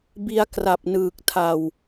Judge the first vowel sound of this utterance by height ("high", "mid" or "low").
high